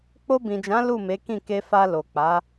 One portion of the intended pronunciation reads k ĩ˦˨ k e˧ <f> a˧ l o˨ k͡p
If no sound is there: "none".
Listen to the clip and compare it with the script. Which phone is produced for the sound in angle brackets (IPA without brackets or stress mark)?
f